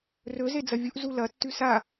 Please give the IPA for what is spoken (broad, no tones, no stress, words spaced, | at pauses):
rɵ zed͡zɐvʲuʔ zulɐ tːʉsa